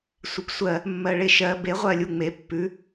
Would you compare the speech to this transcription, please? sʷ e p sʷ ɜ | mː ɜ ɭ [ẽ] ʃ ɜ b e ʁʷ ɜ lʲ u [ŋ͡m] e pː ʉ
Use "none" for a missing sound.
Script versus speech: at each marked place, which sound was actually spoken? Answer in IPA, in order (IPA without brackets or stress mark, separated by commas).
e, ŋ͡m